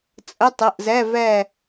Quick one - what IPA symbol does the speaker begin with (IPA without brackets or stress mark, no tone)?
t͡sʼ